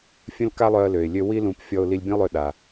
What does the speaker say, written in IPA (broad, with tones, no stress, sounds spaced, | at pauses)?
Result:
fʲ ə̃˥ l k a˥ lˠ œ˧ ə̯ l ø˩ ɪ̯ lʲ ø˧ w i˥ l ũ˧ p fʲ ɔ˧ ʊ̯ l i˧ lʲ bʲ ə̃˥ ʊ̯ lˠ ø˧ ɗ a˩